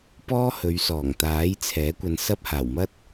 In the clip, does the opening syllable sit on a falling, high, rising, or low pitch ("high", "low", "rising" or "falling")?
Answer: high